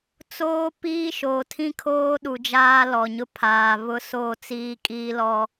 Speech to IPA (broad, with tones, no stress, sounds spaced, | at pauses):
t͡s oː˦ p iː˦ ʃ oː˨ tʰ ĩ˦ kʰ oː˦ ɗ u˨ d͡ʒ aː˦ l ɔ˨ ɲ ʊ˦ pʰ aː˨ β ʊ˦ s o˦˨ t͡s iː˦ kʼ iː˦ l ɔ˦